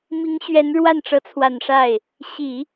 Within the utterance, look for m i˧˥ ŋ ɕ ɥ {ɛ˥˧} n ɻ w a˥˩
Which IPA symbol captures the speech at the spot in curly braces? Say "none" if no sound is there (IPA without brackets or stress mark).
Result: ɛ˧˥